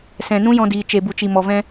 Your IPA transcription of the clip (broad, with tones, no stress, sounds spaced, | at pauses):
s ɛ̃˨ n ũ˦ j ɔ̃˧ d iː˨ t͡ʃ e˨ b u˨ t͡ʃ i˨ m ɔ˨ v ɛ̃˧